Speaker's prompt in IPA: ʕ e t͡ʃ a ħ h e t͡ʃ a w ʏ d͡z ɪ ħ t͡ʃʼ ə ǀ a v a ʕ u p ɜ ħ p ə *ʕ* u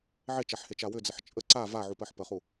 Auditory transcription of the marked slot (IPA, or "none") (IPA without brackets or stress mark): χ